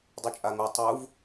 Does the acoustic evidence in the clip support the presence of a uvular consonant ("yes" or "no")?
no